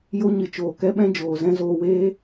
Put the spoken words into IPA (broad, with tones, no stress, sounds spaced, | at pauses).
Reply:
j o˦ ɲ ɨ˨ t͡ʃ oː˨ k ɛ˦ ɓ ɛ̃˦ d͡ʒ oː˨ z ɛ̃˦ z oː˧ w eː˦